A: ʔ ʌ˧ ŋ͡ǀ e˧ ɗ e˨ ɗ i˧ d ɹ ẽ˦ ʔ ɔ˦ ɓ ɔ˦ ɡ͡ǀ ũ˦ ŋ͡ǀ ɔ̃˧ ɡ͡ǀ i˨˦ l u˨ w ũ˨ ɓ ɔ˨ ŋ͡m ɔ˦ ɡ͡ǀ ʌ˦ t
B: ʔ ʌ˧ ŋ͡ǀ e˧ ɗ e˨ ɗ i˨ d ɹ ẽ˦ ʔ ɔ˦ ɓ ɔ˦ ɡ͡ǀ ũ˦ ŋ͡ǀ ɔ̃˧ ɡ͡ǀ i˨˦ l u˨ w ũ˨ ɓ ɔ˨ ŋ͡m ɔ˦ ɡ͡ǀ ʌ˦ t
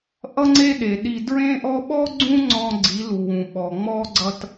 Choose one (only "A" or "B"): A